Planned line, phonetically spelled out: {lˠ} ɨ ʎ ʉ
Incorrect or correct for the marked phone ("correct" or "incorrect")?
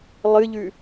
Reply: correct